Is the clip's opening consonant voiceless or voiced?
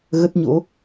voiced